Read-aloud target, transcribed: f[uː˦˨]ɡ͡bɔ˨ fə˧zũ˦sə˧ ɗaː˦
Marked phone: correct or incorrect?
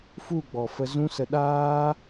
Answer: incorrect